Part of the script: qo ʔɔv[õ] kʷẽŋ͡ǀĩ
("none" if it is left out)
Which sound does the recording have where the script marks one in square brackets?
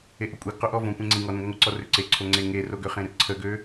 õ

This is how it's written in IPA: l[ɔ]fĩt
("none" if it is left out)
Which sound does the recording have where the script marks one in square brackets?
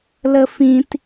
ə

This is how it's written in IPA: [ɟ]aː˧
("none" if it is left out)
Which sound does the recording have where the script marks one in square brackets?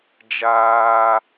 d͡ʒ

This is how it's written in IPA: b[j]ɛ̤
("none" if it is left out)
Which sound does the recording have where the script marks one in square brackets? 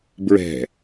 ɹ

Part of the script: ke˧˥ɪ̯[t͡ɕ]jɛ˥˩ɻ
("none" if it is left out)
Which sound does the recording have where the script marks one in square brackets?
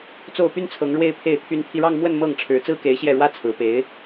ɕ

